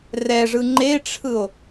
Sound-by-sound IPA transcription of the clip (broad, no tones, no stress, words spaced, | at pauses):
rɛʐɯ ŋ͡ǃeʈ͡ʂʰɯo̯